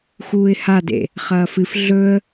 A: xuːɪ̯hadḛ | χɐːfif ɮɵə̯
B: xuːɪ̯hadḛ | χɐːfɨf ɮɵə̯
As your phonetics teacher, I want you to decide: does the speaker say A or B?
B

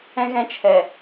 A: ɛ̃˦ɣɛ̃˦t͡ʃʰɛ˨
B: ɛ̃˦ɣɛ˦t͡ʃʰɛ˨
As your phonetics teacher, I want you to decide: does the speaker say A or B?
A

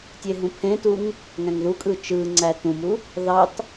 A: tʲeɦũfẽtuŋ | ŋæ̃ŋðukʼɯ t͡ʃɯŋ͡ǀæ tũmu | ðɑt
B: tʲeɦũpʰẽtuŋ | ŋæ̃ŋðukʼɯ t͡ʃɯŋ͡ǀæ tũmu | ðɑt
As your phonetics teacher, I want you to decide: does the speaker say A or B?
B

